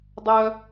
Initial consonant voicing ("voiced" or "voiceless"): voiced